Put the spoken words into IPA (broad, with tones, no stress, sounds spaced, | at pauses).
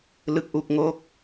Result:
l ɯ˨˩ k̚ ʔ u˨˩ k̚ ŋ o˦˥ k̚